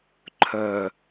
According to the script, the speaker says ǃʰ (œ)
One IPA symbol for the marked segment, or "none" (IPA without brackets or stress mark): œ